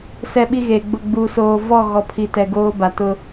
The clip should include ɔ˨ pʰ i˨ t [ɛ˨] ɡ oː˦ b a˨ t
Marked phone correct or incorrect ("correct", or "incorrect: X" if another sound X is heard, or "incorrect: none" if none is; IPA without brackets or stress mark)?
correct